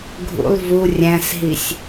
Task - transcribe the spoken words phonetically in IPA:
ɡʱ ṵ lˠ v u rʲ æ̃ s ɦ i sʲ

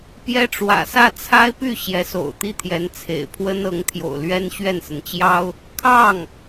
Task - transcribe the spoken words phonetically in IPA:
p j ɛ˥ ʈ͡ʂ w ä̰˨˩ s ä˥˩ t͡sʰ a˥ ɪ̯ p y˥˩ ɕ j ɛ˧˥ s o̰˨˩ ʊ̯ t̪ i˥˩ t̪ʰ j ɛ˧˥ n t͡sʰ ḛ˨˩ ɪ̯ pʰ w ə˥ n ɤ˧˥ ŋ t̪ʰ j o̰˨˩ ʊ̯ l ɥ ɛ˥ n ɕ ɥ ɛ˥˩ n s ə˩ n t͡ɕ j ɑ˥ ʊ̯ | kʰ ɑ˥˩ ŋ

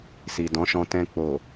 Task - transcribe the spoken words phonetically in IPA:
s i˨ d ɔ̃˨˦ ʃ ɔ̃˧ t ɛ̃˧ k͡p o˨

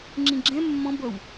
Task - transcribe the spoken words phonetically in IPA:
ŋ͡ǁ ĩ ɡ͡ǁ ɛ̃ mː ɔ̃ b ʌ w

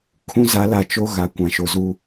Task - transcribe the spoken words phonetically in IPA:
kʰ ũ˦ z a˨˦ l a˨ t͡ʃ o˦ ɣ a˨ kʷ ã˨ ʃ o˨ z u˦

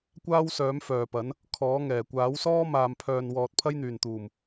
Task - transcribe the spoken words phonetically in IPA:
kʷ aː˥ w s œː˨˥ m f œː˨ p ɐ˨˥ n | kʰ ɔː˨˥ ŋ ɛː˨˩ kʷ aː˨˥ w s ɔː˥ m aː˨ m pʰ œː˨ n w ɔː˨ t̚ pʰ ɐ˥ j n̪ yː˨˩ n t̪ uː˨˩ m

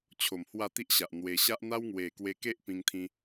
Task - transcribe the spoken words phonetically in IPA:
t͡ɕʰ o˨˩ m h w a˥˧ t̪ i˦ ʔ ɕ a˨ ʔ n̪ w e˧ ɕ a˦ ʔ n̪ a˦ w ŋ w e˨˩ k w e˧ k e˦ ʔ p ĩ˧ ŋ t̪ʰ ĩ˧

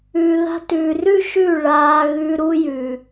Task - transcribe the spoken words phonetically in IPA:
ʉː˨ ð a̤˧ t ʉː˨ r ʉ˦ ʃ ʉ˦˨ ɭ aː˧ ɣ ʉ˧ ɾ u˧ j ʉː˨

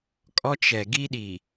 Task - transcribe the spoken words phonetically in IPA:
kʼ ɔ˦ t͡ʃ ɛ˨ ɡ i˦ ɗ i˨

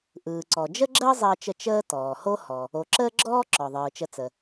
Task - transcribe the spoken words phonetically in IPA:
ʔ ɯː˩ ǀ ɔ˩ d͡ʒ ə˥ ɡ͡ǁ əː˥ zˤ əː˧ t͡ʃ ə˧ t͡ʃ əː˥ t ɔː˩ h o˥ h ɔ˩ | o˩ ǁ əː˥ ɡ͡ǁ ɔː˥ ǁ ɔ˩ ðˤ ɯː˩ t͡ʃ ə˧ t͡s ə˩

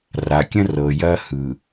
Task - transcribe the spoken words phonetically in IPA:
r a˨ kʲ ə̃˦ r ɤ˨ j ɐ˦ h ɯ˨

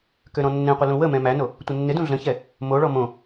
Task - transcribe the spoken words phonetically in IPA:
k ø ɾ ɔ̃ nː ẽ qʷ ɪ l ũ w ə m ɛ̃ m æ n o | tʷ ɪ nː ɪ d ũ ɮ ə̃ ç ɛ | m o ɭ ɔ m õ

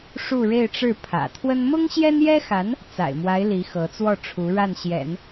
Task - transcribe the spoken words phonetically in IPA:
ʂ u˥˧ ɻ e˥˧ ɪ̯ ʈ͡ʂ ɻ̩˥˩ pʰ ä̰˨˩ t̪ʰ w ə˥ n m ʊ˥ ŋ ɕ j ɛ˥ n j ɛ˥ x a˧˥ n | t͡s a̰˨˩ ɪ̯ m w a˧˥ ɪ̯ l i˧˥ x ɤ˧˥ t͡s w ɔ˥˩ ʈ͡ʂʰ u˧˥ ɻ a˥˩ n ɕ j ɛ̰˨˩˦ n

